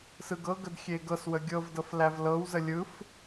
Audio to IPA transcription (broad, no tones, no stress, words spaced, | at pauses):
sɯɡɤɡəd xʲeɡɤswə ɡʲɤvdɤf lævlɤwzə lʲɯf